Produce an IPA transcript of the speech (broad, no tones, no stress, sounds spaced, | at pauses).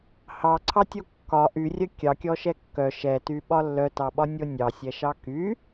h ɑ ǀʰ ɑ tʲ o kː ɒ ʔ y rʲ œ kʲ ɑ kʲ ɔ ʃ ɛ kː œ ʃ ɛ t y ɓ ɒ lː œ t ɑ ɓ ɒ nʲ o nʲ ɑ sʲ ɛ ʃ ɑ k y